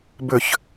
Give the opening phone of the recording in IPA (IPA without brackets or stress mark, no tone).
b